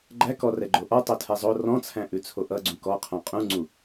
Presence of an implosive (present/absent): absent